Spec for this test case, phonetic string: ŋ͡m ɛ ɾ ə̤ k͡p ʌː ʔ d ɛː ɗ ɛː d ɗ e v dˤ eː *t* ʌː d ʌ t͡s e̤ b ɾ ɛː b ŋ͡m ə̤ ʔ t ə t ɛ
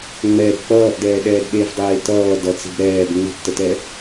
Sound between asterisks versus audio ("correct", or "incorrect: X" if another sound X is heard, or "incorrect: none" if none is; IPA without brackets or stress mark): correct